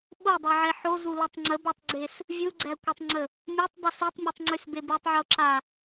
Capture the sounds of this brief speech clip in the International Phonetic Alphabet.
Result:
ɓ o dˤ ɛ ʕ ɛ ħ o z u l o tˤ ŋ͡ǀ ə b a tˤ ɡ͡ǀ e s | vʲ u ɡ͡ǀ æ kʷ e tˤ ŋ͡ǀ ə | mʲ ɛ tˤ dˤ y s u tˤ mʲ u tˤ ŋ͡ǀ y s b e b y tˤ ʕ o ǁ a

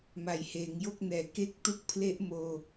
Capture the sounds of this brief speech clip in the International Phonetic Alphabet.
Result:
m a˨˩ j h eː˩˦ ŋ j o˥˩ k̚ n ɛː˩˦ k e˦˥ k̚ t u˦˥ k̚ pʰ l e˦˥ ʔ m oː˧

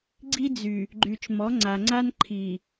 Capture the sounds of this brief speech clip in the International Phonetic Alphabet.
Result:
ɡ͡ǀ i˦ d͡z y˨ | ɡ͡ǃ y˨ t͡ʃ m ɔ˨˦ ŋ͡ǀ a˨ ŋ͡ǀ a˦ n ǃʰ i˨

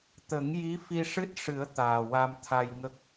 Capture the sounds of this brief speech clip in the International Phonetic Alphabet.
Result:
t̪ ə˨˩˦ ŋ j i˧˥ f i˧ ʂ ɨ˦˥ t̚ ʂ ɨ˨˩˦ ə̯ t̪ aː˨˩ w a˧ m t̪ʰ a˧ j ŋ ə˦˥ k̚

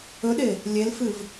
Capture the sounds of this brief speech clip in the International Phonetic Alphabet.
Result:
ɵ ɗ e | lʲ e l f ɨ v

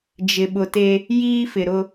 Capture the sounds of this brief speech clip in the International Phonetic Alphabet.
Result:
d͡ʒ ɪ˨ ɓ ʊ˨ t e˦ | j iː˦ f ɪ˨ ɾ ʊ˦

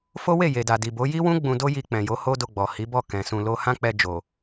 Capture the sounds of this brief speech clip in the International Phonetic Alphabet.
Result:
f o˦ w e˦˨ j e˨ d a˨ d i˨ b o˨˦ j i˦ w ũ˦ ɡ͡b ũ˧ d o˦ j i˧ k͡p ɛ̃˨ j o˨˦ h o˦ d o˧ ɡ͡b ɔ˨ h i˨˦ b ɔ˦˨ k ɛ̃˨ s ũ˧ l o˦ h ã˦ k͡p ɛ˧ d͡ʒ o˨

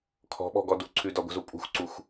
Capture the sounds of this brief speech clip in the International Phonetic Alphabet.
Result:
kʰ ɔ̤ ɓ ɔ̤ ɡ ɔ d u ǀʰ ʉ d ɒ ɡʷ ə̤ z u pʼ ṳ x ǀ u x

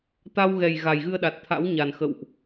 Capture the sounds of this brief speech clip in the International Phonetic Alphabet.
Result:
t̪ a˧ w ɣ ɛ˨˩ j ɣ a˨˩ j ɣ ɨ˧ ə̯ ɗ a˨˩ t̚ t̪ʰ a̰˧˥ w ɲ a˨˩ n x ə̰˧˨ w ʔ

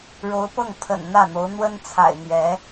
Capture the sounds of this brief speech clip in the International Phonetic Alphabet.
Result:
ɻ o˧˥ ʊ̯ p ɤ˥˩ ŋ pʰ ə̰˨˩ n n̪ ä˥˩ n̪ o˧˥ ʊ̯ n̪ w ə˥ n t͡sʰ a̰˨˩ ɪ̯ n̪ ɥ ɛ˧˥

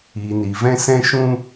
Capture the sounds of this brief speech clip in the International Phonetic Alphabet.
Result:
iː˨ n iː˨ v ɛ̃˦ s ɛ̃˦ ʃ ũ˦

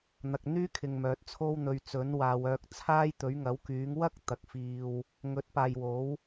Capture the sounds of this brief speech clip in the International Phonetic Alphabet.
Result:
n̪ ɐ˨ k̚ n̪ yː˥ kʰ ɪ˨ ŋ m œː˨ t̚ t͡sʰ o˥ w n̪ ɵ˧ ɥ t͡s ɵ˨˥ n w aː˨˧ w œː˧ k̚ t͡sʰ aː˥ j t̪ ɵ˨˥ ɥ ŋ ɐ˨˥ w k yː˨˥ ŋ w ɐ˥ k̚ t̪ ɐ˨ k̚ f iː˧ w | ŋ ɵ˨˥ t̚ p aː˨ j w o˨˥ w

